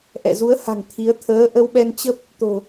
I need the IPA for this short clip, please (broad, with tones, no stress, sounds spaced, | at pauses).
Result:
ʔ ɛ̰˧˨ z u˨˦ ə̯ h a̤˨˩ ŋ t̪ʰ i˨˦ ə̯ t̪ʰ əː˨˦ ʔ ə˧ w ɓ ɛ˧ n t͡ɕ ə˦˥ p̚ | t̪ o̤˨˩